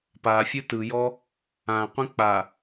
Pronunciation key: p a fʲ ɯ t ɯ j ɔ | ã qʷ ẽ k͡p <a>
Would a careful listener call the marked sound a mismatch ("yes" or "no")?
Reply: no